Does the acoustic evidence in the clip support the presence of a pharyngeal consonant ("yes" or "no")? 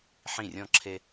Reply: yes